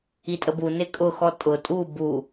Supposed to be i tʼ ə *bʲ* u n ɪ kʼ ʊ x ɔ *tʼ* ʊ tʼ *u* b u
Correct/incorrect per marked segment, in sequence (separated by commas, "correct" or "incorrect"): incorrect, correct, correct